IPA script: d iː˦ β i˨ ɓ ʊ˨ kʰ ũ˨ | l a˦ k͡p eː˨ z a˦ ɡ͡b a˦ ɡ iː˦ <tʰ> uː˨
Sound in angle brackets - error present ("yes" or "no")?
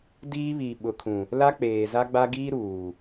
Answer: yes